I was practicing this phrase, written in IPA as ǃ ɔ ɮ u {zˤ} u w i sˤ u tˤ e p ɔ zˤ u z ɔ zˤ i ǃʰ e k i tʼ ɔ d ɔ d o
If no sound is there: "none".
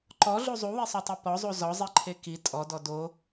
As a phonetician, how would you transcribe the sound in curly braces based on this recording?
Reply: zˤ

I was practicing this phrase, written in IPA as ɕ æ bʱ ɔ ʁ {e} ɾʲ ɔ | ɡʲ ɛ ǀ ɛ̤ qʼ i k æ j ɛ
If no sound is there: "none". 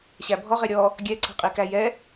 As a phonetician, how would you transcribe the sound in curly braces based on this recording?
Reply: e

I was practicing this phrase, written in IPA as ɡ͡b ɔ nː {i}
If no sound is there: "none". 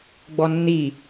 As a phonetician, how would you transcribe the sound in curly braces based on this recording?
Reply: i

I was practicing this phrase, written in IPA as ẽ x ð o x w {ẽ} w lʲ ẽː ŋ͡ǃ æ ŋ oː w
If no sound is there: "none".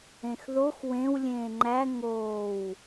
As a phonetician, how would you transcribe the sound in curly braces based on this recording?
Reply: ẽ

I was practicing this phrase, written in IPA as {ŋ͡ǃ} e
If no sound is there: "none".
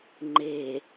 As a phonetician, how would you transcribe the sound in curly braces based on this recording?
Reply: ŋ͡ǃ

